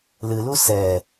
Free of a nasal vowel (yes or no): yes